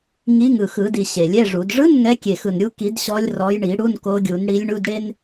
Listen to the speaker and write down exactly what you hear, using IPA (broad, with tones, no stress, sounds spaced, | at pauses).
ŋ i˨˦ ŋ ɯ˨˩ x ɯ˨˩˦ d i˨˩ ɕ e˨˩ lʲ ɛ˧˥˧ ʐ u˨˩˦ d ʐ ɯ˧˥˧ n ŋ ɛ˨˦ kʲ e˨˩ x ɯ˨˩ n ɾʲ u˨˦ k i˨˩˦ d ɕ ɔ˨˦ lʲ r ɔ˨˦ j ɳ i˨˩˦ ɽ u˧˥˧ n k o˨˦ ɡʲ u˨˩˦ n ɽ i˨˦ lʲ ɳ u˧˥˧ d ɽ e˥ n